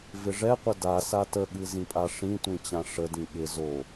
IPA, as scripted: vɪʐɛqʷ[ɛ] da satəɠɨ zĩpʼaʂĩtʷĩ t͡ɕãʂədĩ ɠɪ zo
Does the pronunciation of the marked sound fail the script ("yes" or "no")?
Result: yes